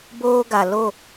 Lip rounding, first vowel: rounded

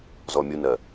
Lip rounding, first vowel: rounded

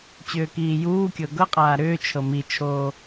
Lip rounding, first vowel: rounded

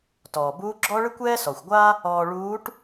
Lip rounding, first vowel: rounded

